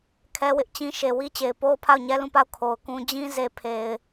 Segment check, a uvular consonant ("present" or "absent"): absent